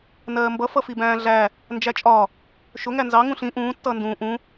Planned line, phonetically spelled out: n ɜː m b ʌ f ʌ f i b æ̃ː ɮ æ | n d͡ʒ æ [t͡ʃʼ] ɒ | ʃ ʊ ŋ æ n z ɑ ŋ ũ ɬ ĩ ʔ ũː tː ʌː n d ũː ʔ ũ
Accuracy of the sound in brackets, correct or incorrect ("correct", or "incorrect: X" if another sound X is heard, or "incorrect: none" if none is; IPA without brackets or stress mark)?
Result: correct